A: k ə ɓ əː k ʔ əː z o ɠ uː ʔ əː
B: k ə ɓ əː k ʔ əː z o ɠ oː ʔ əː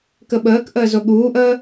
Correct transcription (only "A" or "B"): A